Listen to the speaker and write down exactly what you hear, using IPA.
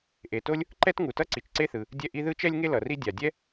ʔe˩to˥lʲ | ǃɛ˥tŋu˩tʌ˥ ǀi˩t͡ʃǀe˥θɯ˩ | dʲɛ˥ʔi˥ ðɯ˥t͡ʃɛ˥lʲŋe˥ lʌ˩ri˥ dʲa˩dʲɛ˥

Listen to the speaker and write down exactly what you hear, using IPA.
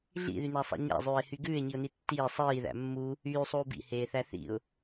ɮḭðynæsˤḛ ɲæ̰zˤʉːɪ̯hy ɡʉːɪ̯ɲiʊ̯ni tːiː sˤiːðæ̰ mːu | yːsˤuː bḭheːθæ θḭʊ̯

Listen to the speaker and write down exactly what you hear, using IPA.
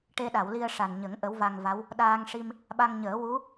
ʈe˧ɗa˨˩˨wli˧ə̯ ʂa˨˩nɲə˨˩˦ŋ ʔə˧˥wva˧ŋva˧˥w | ɗaː˧ŋʂi˧m | ɓa˧ŋɲəː˨˩˦ wu˧˥

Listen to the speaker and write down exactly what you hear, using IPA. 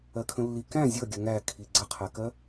ɜkʰə̃lːi kæ̃ zʲʌɡʲə ŋæ kʰiɡ͡ǀəqʰækɜ

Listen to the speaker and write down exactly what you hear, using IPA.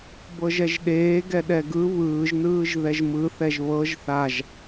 bɤʒɛʒɗeː ɡɛɗɛɡɯ βɯːʒnɯːʒ ðɛʒmɯ θɛʒβɤʒ θaʒ

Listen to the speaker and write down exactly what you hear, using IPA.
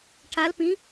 ʈʰalpĩ

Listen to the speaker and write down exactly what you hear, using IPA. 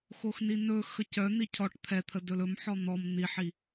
xoxninɵ xəcœ n̪icʰɔʈ t̪ʰɛt̪ʰə dɵlɵm ħɔn̪ɔm n̪iħi

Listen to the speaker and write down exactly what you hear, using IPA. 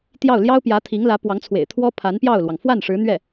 t̪jɑ˥˩ʊ̯ ljɑ˥ʊ̯ pjä˧˥t̪ʰi˧˥ŋ lä˧˥pwɑ˧˥ŋt͡sʰwḛ˨˩ɪ̯ t̪ʰwɔ˥ pʰa˧˥npjɑ˥˩ʊ̯lwɑ˩ŋ fwa˥˩n ʂɻ̩˧˥n̪ɥɛ˥˩

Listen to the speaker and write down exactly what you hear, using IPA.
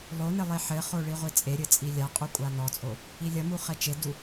lˠonɘ lˠeħɘχo ɭiʁʷit͡sʼeɾʲɘ t͡sʼilʲaqʼu kʷʼanɔt͡sʼo | ilʲɐmu χɛt͡ʃedu

